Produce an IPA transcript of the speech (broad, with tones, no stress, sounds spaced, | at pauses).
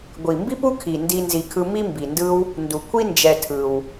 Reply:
ɡʷ i˩ m b i˥ p u˥ kʰ i˩ n d i˨ n z i˨ kʰ ɯ˦ m i˥ m b i˩ n d ɯ˦ w | n d u˩ kʷʰ i˥ n d͡ʒ ɛ˨ tʰ ɯ˩ w